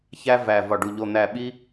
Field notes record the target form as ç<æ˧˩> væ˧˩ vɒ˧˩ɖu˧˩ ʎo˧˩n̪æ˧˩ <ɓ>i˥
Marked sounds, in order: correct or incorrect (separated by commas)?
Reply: incorrect, correct